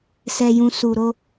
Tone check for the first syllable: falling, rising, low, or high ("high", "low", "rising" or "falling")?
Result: high